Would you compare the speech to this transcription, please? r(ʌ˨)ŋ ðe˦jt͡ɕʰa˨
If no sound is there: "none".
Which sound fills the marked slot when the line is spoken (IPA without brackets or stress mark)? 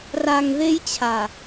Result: a˨